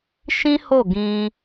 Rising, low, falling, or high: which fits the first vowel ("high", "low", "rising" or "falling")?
high